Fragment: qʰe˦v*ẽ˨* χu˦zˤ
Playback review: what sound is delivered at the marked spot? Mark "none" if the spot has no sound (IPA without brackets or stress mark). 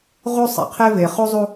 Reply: e˨